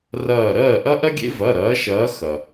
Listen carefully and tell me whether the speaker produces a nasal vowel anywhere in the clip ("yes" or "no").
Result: no